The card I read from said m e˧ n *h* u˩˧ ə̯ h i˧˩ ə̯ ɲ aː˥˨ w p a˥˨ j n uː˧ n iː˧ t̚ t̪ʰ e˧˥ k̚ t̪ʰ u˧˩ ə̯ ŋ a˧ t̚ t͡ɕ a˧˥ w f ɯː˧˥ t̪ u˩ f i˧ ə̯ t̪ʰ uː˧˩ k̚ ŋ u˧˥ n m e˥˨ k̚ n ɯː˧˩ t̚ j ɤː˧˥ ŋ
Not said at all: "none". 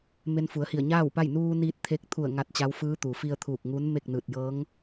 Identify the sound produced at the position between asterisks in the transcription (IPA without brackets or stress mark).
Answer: f